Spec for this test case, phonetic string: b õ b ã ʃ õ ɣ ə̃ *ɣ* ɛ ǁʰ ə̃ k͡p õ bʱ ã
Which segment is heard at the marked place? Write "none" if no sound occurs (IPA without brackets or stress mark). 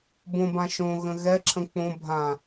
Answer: ɣ